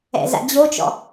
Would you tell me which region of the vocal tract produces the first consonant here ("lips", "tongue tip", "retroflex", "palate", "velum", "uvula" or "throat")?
tongue tip